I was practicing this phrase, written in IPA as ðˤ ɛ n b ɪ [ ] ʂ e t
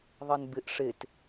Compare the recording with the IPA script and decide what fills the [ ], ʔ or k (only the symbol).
ʔ